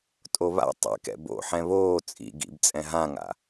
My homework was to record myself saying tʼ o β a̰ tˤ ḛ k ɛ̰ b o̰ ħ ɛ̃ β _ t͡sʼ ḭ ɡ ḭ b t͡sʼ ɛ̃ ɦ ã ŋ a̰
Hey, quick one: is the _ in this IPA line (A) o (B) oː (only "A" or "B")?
B